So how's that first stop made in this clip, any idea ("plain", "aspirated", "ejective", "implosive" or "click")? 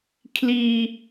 aspirated